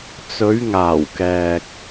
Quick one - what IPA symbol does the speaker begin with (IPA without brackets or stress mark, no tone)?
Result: t͡s